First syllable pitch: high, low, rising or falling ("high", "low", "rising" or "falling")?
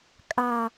high